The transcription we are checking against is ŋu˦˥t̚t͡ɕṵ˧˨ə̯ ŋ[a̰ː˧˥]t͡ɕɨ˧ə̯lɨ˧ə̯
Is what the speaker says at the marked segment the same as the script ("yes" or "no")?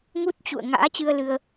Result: yes